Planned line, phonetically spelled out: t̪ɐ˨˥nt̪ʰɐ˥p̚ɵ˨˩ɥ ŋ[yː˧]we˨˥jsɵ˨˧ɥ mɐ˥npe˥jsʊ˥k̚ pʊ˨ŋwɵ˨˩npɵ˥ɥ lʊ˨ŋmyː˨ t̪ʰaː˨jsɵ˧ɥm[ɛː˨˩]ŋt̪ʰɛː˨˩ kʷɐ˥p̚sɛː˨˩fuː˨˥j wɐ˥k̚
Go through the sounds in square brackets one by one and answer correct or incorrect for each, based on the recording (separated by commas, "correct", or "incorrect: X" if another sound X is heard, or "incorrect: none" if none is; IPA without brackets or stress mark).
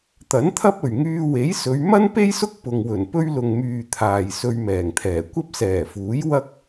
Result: correct, correct